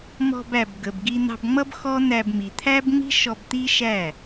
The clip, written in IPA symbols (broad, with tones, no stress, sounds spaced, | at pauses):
m ɔ̤˧ b æ˨ b ɡ ə˨ b ɡ i˧ n̪ ɑ̤˧ b ŋ͡m ʌ˦ b x ɔ˦ n̪ æ˧ b m i˨ t̪ʰ æ˦ b ŋ͡m i̤˦ ʃ ɔ˧ b t̪ i˦ ʃ æ˦˨